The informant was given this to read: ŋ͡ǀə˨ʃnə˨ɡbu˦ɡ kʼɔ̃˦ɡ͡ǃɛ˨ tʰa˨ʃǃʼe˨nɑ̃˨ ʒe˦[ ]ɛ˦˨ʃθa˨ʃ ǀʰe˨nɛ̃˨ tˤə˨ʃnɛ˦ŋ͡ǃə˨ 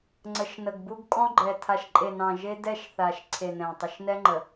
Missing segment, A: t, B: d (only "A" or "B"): B